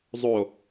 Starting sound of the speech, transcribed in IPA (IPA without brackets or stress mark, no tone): zˤ